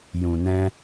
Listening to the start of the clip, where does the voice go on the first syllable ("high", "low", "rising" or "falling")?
low